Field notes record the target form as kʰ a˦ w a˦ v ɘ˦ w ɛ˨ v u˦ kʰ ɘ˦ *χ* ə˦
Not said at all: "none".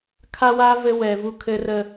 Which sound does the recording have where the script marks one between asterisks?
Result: r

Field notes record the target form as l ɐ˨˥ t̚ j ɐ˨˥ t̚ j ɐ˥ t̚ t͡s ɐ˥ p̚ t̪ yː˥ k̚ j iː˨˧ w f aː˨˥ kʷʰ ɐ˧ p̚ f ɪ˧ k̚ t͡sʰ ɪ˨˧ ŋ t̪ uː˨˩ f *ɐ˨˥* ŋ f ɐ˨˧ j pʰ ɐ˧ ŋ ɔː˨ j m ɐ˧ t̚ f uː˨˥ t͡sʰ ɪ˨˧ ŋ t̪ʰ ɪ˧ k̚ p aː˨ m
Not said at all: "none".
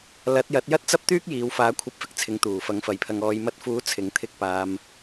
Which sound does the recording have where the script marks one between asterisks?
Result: ɐ˨˥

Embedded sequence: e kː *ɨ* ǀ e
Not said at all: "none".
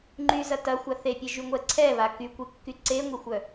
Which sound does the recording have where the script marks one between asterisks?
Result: y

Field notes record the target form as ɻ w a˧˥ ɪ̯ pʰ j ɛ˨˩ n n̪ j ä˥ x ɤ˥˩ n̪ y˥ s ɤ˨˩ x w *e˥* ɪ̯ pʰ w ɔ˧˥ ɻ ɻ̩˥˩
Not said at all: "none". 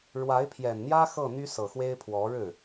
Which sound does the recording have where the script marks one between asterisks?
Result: e˥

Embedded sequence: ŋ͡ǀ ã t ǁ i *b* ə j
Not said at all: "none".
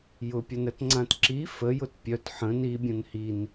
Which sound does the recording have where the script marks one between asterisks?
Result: f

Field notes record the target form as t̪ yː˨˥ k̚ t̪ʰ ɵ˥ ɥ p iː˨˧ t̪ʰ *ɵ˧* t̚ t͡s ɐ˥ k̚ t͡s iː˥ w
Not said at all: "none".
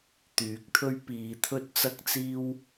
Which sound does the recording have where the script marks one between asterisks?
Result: ɵ˥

